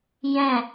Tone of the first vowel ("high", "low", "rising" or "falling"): falling